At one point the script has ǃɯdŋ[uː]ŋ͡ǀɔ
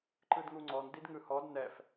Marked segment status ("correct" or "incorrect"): incorrect